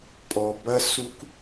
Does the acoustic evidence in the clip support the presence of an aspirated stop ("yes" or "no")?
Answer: no